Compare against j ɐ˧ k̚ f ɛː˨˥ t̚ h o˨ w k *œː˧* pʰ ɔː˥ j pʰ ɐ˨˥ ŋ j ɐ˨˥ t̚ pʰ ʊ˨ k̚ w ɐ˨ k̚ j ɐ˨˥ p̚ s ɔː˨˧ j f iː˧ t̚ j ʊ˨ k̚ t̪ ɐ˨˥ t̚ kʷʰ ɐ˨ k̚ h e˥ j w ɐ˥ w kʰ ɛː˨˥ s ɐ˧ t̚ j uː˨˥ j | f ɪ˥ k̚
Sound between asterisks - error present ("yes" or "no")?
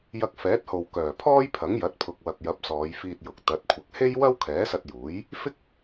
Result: yes